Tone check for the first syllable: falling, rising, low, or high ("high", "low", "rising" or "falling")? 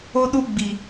high